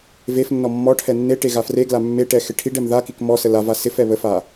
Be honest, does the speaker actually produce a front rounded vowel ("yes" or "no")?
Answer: no